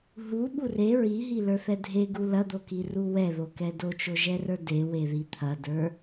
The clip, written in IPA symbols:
ɦ u ɓ u r e ɹ i ɦ i l ə˞ θ ɛ dʱ e ɡ u l ɐ d̪ o k i r u w ɛ ð o k ɛ d o t͡ʃ o ʒ ɛ r ə˞ d e w e ð i t̪ʰ ɐ d ə˞

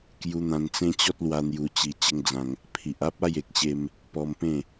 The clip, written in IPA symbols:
k j u˧ n̪ ã˧ n t͡s ẽ˦ t͡ɕ ɔ˦ t̚ l w a˧ n̪ j u˧ t͡ɕ i˧ t͡ɕ ə˧ ŋ d͡z ã˧ ŋ | pʰ i˨ ʔ a˦ p̚ a˥˧ j e˨ k̚ ɕ e˧ m | p ɔ˧ m p ẽ˥˧

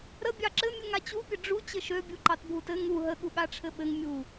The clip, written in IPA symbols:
ɾ ə bʲ ɑ ǁ ɘ mʲ u ŋ a t͡ɕ u pʲ ə ɖ͡ʐ u t͡ɕ ɘ ʃ ø bʲ u ǃ ɑ t bʱ u t ɘ ŋ u ɦ ə ɠ u ɠ a ʈ͡ʂʰ ɘ ɓ ɘ ŋ mʲ u

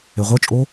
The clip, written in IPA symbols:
e ʁʷ ɤ t͡ʃʼ o

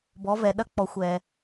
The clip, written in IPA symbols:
b ɔ˩˧ v ɛ˩ ɗ ɐ˧˥ k͡p ɔ˩˧ xʷ ɛ˩

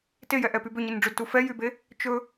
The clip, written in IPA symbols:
t e j ɛ ʔ ɛ p y b ø ɲ e n ɖ͡ʐ ɵ d t u f ɛ j y b e | t͡ʃ ɵ

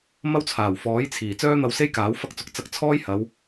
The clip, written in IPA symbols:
m ɐ˥ w t͡sʰ aː˨˩ w f ɔː˨˥ j t͡sʰ iː˨˩ t͡s œː˥ n̪ ɐ˧ w s e˥ j k aː˨˥ w f ɐ˥ k̚ t͡s ʊ˨˥ k̚ t͡s ɐ˧ k̚ t͡sʰ ɔː˥ j h ɐ˨˧ w

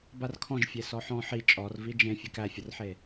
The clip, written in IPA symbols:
b a r kʰ ɔ̃ ʒ fʲ e s ɔ ħ ɔ̃ ħ i t͡ʃʼ ɔ r v i d͡ʒ ẽ fʲ e k æ fʲ ə r ħ e

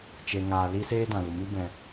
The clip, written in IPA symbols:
t͡ʃ e˨ ŋ aː˨ l i˦ s eː˦ d ã˨ l u˨ m i˦ b ɛ̃˧

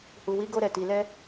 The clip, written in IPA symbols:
h u˨ w i˨˦ ɡ o˧ ɾ ɛ˨ t i˨ l ɛ˧

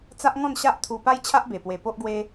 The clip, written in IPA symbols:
t͡s a˦ ʔ ŋ ɔ̃˥˧ n ɕ a˦ ʔ t̪ʰ u˧ p a˦ j t͡ɕʰ a˦ ʔ b e˨˩ p w e˨˩ p o˦ ʔ ɡ w e˦

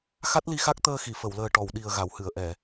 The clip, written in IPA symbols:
x a˦˥ t̚ l i˧ x a˦˥ k̚ t̪ əː˧ x i˨˩˨ f ə˨˩˨ w l əː˨˩ ʈ ɔ˨˩˨ w ɗ i˨˩ ə̯ ɣ a˨˩˨ w h ɨ˨˩˨ ə̯ ʔ ɛ˨˩˨

